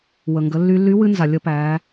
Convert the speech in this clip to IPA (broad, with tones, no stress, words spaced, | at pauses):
wə˩ŋɡə˩˧lːy˧lːy˧˥ wɨ˧˥nza˩lʲə˧pæ˩˧